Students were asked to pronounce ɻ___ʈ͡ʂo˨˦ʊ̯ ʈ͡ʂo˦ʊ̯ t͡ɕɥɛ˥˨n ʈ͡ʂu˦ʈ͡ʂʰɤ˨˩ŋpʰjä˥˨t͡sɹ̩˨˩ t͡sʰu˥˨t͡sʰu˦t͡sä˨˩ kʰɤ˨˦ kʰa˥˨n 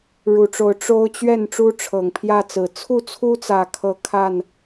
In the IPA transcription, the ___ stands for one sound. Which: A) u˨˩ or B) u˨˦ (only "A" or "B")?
A